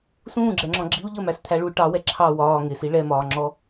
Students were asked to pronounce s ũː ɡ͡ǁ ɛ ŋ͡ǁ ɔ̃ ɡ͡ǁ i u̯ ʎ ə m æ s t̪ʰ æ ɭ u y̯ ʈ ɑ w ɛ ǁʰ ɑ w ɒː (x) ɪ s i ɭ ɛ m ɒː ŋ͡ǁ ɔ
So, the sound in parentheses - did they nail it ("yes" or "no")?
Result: no